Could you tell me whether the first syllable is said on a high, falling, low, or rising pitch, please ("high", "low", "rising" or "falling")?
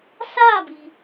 falling